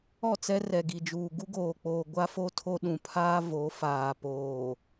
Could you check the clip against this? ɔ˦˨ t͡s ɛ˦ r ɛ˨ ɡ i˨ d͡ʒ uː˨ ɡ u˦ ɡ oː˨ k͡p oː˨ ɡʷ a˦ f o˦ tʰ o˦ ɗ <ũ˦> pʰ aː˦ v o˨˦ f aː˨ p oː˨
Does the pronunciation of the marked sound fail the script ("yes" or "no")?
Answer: yes